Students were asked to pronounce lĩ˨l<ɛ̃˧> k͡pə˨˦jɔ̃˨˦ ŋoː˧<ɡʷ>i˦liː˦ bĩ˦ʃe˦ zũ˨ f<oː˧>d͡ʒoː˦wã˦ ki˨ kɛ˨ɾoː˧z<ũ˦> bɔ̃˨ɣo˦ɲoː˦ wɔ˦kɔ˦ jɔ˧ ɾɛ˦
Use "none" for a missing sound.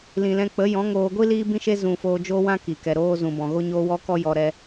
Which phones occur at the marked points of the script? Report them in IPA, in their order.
ɛ̃˧, ɡʷ, oː˧, ũ˨

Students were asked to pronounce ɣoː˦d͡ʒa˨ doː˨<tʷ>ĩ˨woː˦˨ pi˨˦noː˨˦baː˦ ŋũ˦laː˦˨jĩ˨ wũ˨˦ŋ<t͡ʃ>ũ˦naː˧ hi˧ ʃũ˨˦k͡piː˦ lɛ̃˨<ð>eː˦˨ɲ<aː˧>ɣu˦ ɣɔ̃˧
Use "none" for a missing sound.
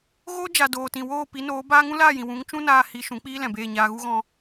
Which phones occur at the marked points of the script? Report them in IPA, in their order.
t, t͡ʃ, b, aː˧

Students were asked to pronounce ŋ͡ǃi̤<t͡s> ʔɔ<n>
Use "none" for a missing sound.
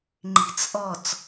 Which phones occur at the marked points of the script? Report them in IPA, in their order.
t͡s, t͡s

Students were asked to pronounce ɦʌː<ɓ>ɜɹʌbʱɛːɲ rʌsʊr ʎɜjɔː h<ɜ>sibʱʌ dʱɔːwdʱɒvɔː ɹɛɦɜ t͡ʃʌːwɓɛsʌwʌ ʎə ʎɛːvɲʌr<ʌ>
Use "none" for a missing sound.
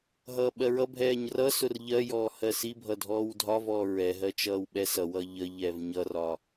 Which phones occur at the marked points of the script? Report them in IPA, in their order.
ɓ, ɜ, ɒ

